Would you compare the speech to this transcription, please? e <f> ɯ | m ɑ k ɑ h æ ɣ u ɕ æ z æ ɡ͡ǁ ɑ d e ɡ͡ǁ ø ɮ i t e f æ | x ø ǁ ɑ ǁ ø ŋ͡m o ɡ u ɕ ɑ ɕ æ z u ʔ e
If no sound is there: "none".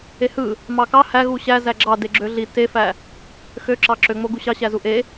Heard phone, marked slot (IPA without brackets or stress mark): h